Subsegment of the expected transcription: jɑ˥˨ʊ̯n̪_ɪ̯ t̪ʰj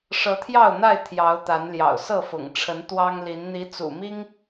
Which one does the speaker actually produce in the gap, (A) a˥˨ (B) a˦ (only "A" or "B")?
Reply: A